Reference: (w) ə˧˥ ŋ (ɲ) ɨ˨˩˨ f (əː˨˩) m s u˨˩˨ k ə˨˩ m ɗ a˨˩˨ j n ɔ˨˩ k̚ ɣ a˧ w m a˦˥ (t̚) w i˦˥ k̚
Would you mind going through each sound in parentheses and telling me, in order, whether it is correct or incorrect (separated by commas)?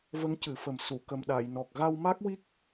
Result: incorrect, incorrect, incorrect, incorrect